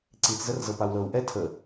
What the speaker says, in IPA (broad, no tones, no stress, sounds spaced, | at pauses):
ǀ i t͡s z ə r z ɤ p a w l ɤ w ʔ ɛ tʰ ə